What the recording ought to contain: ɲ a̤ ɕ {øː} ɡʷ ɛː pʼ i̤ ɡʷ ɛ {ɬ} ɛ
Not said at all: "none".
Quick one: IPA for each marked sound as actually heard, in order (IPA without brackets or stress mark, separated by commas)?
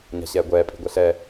ɛː, ɬ